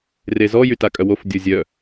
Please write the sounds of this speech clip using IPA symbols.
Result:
rezɔ jytakʼœwof dʲozʲœ

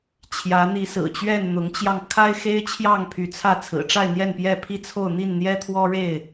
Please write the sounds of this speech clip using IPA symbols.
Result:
t͡ɕʰjä˨˦n̪i˨˦sɹ̩˨˩t͡ɕɥɛ˥˨n n̪ʊ˨˦ŋt͡ɕjɑ˧ŋkʰa˦ɪ̯xe˦ɪ̯ t͡ɕʰjɑ˥˨ŋpʰy˨˦t͡sʰä˥˨ t͡sʰɹ̩˨˩ʈ͡ʂa˥˨ɪ̯n̪jɛ˥˨npjɛ˥˨ pʰi˥˨t͡sʰo˥˨ʊ̯ n̪i˥˨nn̪jɛ˦t̪ʰwɔ˦ɻe˥˨ɪ̯

